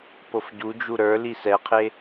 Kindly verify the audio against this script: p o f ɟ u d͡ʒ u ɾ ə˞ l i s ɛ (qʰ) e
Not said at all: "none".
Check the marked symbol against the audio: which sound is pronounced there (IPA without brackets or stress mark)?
qʰ